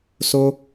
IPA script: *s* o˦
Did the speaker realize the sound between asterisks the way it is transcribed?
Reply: yes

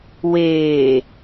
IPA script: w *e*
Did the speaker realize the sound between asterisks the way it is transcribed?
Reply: no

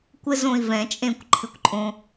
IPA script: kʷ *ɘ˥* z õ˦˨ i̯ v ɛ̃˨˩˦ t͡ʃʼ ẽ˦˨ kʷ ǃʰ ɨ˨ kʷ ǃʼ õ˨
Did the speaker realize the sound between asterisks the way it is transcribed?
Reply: yes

